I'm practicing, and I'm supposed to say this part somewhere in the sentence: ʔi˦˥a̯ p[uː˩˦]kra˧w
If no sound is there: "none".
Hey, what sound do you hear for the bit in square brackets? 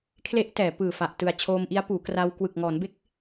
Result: uː˩˦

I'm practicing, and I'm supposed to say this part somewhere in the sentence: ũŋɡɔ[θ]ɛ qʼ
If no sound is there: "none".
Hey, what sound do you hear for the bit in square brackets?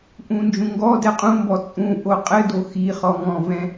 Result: d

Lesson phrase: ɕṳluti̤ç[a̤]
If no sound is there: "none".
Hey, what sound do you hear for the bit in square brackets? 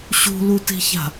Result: a̤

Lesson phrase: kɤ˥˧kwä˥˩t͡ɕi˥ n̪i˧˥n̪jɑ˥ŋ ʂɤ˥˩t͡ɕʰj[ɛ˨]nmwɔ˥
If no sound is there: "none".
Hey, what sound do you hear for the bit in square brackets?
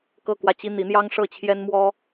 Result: ɛ˥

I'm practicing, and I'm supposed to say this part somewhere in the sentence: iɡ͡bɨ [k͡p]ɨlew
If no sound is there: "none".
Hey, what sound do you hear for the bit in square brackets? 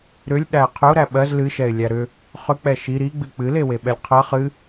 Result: k͡p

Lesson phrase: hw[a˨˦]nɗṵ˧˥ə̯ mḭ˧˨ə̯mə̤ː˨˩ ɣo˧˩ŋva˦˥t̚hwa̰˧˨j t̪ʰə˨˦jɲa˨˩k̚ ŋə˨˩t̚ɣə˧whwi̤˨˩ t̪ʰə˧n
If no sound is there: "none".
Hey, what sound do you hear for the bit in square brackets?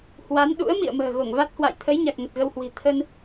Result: a˨˦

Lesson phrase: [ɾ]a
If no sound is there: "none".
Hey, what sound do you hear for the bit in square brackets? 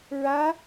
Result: ɹ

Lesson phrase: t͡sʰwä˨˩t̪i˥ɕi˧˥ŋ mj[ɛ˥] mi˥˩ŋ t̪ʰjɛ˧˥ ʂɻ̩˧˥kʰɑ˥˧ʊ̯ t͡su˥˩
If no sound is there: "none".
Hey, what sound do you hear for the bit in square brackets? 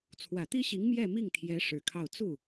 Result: ɛ˥˧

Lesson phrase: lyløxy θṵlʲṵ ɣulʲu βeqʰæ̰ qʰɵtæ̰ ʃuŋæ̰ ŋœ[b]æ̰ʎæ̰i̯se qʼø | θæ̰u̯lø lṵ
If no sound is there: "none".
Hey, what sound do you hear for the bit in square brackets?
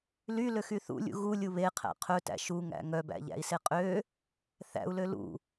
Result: b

